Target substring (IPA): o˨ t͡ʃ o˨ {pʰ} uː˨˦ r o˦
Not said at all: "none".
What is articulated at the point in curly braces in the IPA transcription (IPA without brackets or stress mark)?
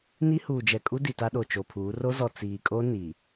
pʰ